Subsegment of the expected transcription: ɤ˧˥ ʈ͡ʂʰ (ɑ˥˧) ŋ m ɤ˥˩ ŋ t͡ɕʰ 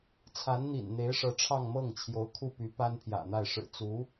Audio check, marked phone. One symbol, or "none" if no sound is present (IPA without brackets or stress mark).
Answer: ɑ˥˧